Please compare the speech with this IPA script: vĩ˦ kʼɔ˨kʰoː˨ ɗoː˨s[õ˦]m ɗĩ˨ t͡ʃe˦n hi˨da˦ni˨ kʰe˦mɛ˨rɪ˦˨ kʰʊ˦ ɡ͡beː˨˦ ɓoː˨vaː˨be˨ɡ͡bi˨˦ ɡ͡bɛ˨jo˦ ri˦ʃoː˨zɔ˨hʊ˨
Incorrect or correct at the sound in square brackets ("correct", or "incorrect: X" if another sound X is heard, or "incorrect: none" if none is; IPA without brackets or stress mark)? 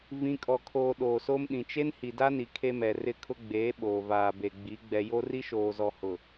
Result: incorrect: o˦